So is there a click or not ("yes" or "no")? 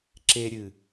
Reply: yes